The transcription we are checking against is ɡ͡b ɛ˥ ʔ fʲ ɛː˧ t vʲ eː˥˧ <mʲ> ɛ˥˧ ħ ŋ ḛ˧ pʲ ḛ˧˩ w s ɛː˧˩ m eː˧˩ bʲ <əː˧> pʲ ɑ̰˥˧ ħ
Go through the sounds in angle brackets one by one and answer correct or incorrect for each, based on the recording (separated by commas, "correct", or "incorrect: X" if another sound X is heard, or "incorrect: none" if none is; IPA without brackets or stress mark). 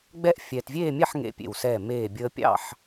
correct, correct